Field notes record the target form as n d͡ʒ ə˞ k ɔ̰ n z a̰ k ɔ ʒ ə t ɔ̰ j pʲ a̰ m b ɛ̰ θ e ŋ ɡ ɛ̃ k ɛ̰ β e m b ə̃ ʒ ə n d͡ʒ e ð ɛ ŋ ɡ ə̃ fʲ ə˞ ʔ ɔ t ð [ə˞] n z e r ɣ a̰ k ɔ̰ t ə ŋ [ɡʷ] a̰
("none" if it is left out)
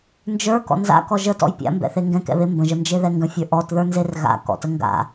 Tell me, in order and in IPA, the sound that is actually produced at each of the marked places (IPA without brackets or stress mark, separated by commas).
ə˞, ɡ